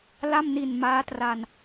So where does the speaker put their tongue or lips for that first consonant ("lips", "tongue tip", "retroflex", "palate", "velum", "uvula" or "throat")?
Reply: tongue tip